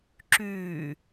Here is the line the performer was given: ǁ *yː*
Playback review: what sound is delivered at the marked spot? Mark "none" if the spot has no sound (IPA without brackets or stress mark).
yː